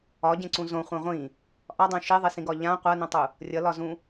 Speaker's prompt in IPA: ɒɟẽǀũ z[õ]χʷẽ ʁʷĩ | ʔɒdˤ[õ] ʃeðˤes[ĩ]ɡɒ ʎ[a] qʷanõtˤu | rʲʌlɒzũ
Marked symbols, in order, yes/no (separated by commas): yes, yes, yes, no